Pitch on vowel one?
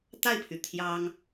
falling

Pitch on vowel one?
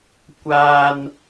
high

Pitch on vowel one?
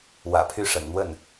low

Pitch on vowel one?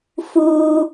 high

